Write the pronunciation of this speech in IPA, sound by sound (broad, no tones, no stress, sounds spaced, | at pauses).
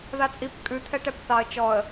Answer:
ð a t͡sʼ i p kʼ ʉ t̪ʰ ɛ ʈ ɛ p θ ɑ ə̯ t͡ʃ ɔ ə̯